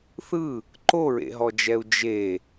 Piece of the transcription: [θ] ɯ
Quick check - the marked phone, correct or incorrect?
correct